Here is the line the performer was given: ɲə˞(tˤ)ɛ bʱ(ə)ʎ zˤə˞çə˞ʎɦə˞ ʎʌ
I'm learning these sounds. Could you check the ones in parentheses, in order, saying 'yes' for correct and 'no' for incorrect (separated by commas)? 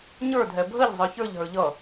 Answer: no, yes